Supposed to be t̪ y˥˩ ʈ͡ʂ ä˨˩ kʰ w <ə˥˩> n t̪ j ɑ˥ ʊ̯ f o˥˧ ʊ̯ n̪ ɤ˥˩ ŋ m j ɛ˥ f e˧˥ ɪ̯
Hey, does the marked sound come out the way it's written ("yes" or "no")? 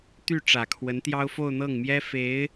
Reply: no